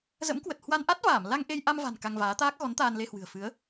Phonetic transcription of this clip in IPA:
z ə̰˧˥ m k w ə˨˩ t̚ h w a˧ n ʔ a˦˥ t̚ v aː˧˩ m l a˧ ŋ ʔ e˧ j ʔ a˧ m v a̤˨˩ n k a˧ ŋ v aː˨˦ t̪ aː˦˥ k̚ ɣ ɔ˨˦ n t̪ aː˧ n l e˧ h w ɨ̤˨˩ ə̯ f ɨ˨˦ ə̯

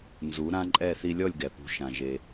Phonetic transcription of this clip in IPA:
n z u˩˥ ɾ ã˥ ǃʼ ɛ˥˩ θ i˧ lʲ ɔ˥˩ lʲ ɡ ɛ˩ p ṳ˩˥ ʃ ã˩ ʒ e˩

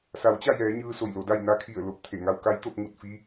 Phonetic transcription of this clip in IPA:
s a˩˧ w t͡ɕ a˥˨ j ɛː˩˧ ɲ ɯː˧ s o˧˩ j l o˩˧ d a˥˨ j n a˧˥ kʰ i˧˩ ə̯ l o˧˥ p̚ t̪ʰ e˧˩ ŋ a˧ w k a˧˥ j t̪ o˧ p̚ ŋ u˥˨ t̚ f i˧˥

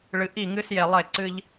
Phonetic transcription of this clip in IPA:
ɭ ɨ˨ ʔ i˦˨ ŋ ɨ˦ s j e˨ lˠ e˦˨ ǀ ɨ˦ ʎ

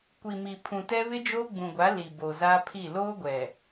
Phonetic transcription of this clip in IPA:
kʷ i˨ m i˨ pʰ ũ˨ t ɛ˦ β ɪ˦ d͡ʒ oː˦ ɡ͡b ũ˨ ɡʷ a˨˦ l i˨ b o˨ z aː˦ pʰ i˦˨ l oː˦ ɡʷ ɛ˨

